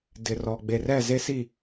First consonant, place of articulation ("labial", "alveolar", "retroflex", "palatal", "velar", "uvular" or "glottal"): alveolar